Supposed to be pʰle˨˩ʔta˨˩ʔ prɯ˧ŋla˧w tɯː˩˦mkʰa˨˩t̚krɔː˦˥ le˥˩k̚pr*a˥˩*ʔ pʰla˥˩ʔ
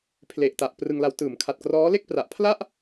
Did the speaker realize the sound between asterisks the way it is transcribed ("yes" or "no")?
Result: no